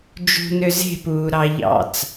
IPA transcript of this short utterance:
d͡ʒ ṳ n ø z e̤ p uː ɾ ɑ ʎ ɑ̰ t͡s

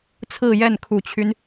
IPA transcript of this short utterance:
t͡sʰ ɹ̩˥˧ j ɛ˥˩ n kʰ u˨˩ t͡ɕʰ y˦ n

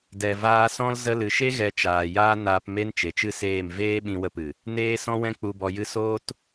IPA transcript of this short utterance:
d ɛ˨ v aː˧ s ɔ̃˦ l z ə˧ l ɨ˨ ʃ e˦ ɣ ɛ˨˦ t͡ʃ aː˨ j aː˦ n aː˧ p m e˦ n t͡ʃ e˨ t͡ʃ ɨ˦ s eː˦˨ m v eː˦ ɓ ĩ˧ w ə˧ p ɨ˨ | n eː˦ s ɔ̃˦ w ɛ̃˦ k͡p u˧ b ɔ˧ j ɨ˦ s oː˦ t

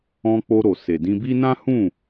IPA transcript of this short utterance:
ɔ̃˧ k͡p o˧ ɾ o˨ s e˨ d ĩ˧ b i˦ n ã˦ h ũ˦˨

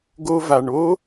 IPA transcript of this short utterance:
ɡ o˧ v a˨ ɳ o˦

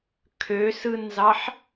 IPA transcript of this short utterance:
kʰ ø s ɯ n z ɑ ħ

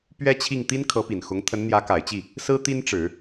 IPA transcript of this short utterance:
p ɥ ɛ˥ t͡ɕʰ i˥˩ ŋ t̪ i˥ n kʰ ɤ˧˥ p i˨˩ n x ʊ˧˥ ŋ t̪ʰ ə˧˥ n n̪ j ä˧˥ k a˨˩ ɪ̯ t͡ɕ i˥˩ | s ɹ̩˥ t̪ i˥ n ʈ͡ʂ ɻ̩˨˩˦

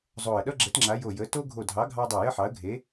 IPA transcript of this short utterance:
zˤ o˧˩ ə̯ ɗ ʌ˥ ɡ͡ǁ ə˨˥ t ŋ͡ǁ a˨˥ j o˧˩ j ə˨˥ t o˥ ɡʱ o˧˩ dʱ ɑ˨˥ ɡʱ ɑ˥ dˤ o˧˩ j ə˥ ħ ɑ˨˥ ə̯ ɡʱ e˨˥

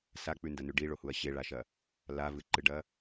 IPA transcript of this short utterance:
s a k͡p ʉ n d ɐ n ʉ ɖ i ɭ o h u ɐ̯ ɕ e ɭ a ʃ ɐ | l a v ɨ ǃ ɨ ɖ ɐ

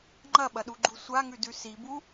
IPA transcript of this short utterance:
ŋ͡ǃ ɐ ɓ ɐ ɗ u ɡ͡ǃ u sʷ a ŋ ʉ d ʉ s i b u

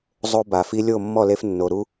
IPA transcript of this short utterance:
zˤ o˦ b a˩ f i˦ lʲ o˥˨ mː ɔ˥˨ l e˦ f nː o˩ ɾ u˦

